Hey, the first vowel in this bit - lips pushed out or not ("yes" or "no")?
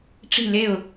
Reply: no